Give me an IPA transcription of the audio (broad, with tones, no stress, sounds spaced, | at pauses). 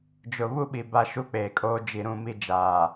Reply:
d͡ʒ ʊ˨ β u˦ ɓ i˨ b a˦ ʃ u˦ k͡p eː˨ kʼ oː˦ d͡ʒ i˨ ɾ ũ˦˨ m i˦ d͡ʒ aː˨